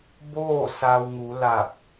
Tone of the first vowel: falling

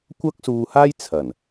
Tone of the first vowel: high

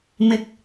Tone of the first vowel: low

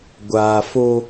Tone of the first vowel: low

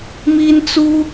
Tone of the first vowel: high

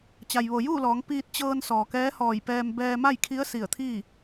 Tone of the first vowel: low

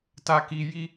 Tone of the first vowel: high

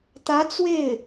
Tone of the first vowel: rising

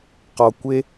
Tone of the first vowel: low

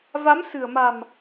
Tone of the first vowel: rising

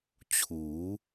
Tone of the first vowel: rising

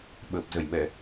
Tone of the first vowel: low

